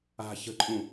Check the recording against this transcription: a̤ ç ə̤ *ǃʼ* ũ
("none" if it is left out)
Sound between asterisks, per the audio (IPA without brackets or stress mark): ǃʼ